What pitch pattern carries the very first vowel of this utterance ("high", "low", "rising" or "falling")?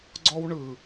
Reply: high